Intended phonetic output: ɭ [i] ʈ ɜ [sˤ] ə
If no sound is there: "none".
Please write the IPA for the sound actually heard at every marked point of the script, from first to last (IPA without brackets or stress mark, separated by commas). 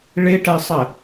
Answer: ɪ, sˤ